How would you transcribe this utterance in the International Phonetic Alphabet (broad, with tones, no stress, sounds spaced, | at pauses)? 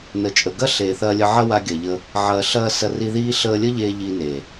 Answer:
n ə˨ t͡ʃʼ ə˨ ɡ ɐ˦ ɬ eː˨ θ ɐː˧ lʲ ə˧ ʕ ɐ˦ w a˧ ɡʲ ɐ˨ ʎ ə˧ | ʕ ɐː˨ ɬ ɐː˧ s ɐ˧ r i˧ ð iː˦ ɬ əː˧ lʲ ə˦ ʎ eː˧ ʎ iː˧ n eː˨